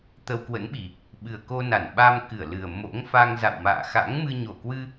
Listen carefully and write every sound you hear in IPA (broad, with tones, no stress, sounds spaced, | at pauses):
t̪ ə˧ w k w ə̰˧˥ n ɓ i˨˩ | ɓ ɨ˨˩ ə̯ k o˧ n a˧˩ n ɓ a˧ m k ɨ˧˩ ə̯ l ɨ˨˩ ə̯ m o̰˧˥ ŋ f a˧ ŋ z a̰˧˨ w m a̰ː˧˨ x a̰˧˥ ŋ m ɨ˧ ɲ o˧˩ k w ɨ˧